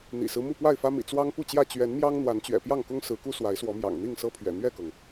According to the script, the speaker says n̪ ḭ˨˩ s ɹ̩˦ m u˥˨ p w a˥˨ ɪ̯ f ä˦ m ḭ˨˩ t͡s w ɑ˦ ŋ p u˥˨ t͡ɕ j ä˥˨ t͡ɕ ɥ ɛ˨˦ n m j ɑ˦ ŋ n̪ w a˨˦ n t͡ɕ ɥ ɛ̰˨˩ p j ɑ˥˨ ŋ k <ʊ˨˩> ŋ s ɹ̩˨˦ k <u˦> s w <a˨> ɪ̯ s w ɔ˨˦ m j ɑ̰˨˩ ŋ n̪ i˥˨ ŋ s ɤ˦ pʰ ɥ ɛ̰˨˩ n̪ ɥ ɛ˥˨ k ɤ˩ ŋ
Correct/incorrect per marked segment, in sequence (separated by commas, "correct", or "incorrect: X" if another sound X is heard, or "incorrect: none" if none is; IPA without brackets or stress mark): incorrect: ʊ˦, correct, incorrect: a˨˦